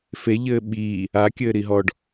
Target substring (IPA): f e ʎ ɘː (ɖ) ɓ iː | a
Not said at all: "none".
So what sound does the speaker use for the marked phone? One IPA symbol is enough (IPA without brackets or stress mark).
none